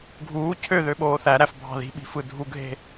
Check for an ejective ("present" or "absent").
absent